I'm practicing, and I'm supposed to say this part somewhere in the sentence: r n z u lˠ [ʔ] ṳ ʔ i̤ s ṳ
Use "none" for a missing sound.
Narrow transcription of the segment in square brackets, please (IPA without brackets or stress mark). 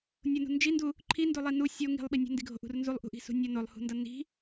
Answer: ʔ